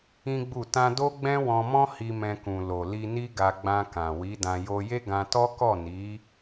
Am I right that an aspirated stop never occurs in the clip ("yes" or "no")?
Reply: yes